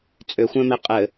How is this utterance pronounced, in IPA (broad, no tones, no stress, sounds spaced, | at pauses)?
t͡sʼ ʏ xʷ ɛ̃ m e qʼ ɘ